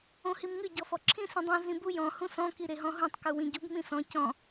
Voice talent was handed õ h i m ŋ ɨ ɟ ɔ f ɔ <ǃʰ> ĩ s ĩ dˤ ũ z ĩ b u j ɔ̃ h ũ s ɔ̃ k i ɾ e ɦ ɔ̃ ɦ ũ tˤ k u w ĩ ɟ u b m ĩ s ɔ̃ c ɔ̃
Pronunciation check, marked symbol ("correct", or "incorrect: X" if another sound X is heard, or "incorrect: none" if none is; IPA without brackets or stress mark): incorrect: ǁʰ